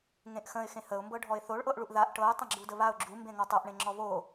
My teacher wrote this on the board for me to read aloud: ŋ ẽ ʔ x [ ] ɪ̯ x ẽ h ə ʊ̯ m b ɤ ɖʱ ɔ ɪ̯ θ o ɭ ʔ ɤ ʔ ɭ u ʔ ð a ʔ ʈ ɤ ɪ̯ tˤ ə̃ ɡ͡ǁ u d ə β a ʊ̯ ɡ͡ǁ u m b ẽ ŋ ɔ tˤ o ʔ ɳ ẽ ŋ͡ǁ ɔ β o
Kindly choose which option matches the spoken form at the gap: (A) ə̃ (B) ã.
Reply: A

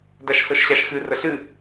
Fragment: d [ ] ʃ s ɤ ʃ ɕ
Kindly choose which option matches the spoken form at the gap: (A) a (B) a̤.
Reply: A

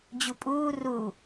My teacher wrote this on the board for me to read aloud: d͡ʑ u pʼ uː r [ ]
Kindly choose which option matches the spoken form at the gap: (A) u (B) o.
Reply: A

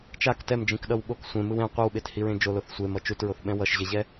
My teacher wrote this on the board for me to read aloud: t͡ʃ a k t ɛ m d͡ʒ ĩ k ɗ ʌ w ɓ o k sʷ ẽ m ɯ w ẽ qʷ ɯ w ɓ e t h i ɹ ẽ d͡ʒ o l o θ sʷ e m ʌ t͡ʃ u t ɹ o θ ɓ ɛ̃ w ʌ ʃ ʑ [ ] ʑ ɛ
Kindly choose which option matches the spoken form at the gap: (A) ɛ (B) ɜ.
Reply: A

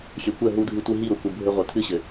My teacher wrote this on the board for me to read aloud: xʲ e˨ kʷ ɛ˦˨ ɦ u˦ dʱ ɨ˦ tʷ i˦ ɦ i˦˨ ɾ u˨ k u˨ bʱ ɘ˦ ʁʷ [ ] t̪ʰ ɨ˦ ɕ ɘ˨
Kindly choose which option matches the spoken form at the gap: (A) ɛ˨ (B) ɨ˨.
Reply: B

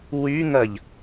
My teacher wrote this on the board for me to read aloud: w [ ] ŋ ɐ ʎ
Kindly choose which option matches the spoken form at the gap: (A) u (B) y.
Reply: B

